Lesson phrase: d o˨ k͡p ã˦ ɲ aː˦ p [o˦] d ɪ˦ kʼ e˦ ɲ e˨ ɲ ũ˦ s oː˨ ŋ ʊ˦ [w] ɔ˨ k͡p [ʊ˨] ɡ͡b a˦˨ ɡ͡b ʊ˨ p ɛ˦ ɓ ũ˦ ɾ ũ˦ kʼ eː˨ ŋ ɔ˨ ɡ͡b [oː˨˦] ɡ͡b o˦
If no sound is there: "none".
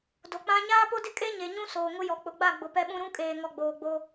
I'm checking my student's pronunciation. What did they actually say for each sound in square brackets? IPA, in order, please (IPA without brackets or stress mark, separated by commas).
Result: o˦, j, ʊ˨, oː˨